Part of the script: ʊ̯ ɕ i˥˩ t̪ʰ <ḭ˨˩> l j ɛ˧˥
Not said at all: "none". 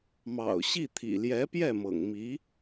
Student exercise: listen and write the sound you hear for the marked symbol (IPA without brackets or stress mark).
ḭ˨˩